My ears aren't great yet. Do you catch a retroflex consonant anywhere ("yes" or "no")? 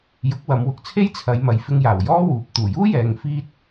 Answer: no